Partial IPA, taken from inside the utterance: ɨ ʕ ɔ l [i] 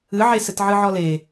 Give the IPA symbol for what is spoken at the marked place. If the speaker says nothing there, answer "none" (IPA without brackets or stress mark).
e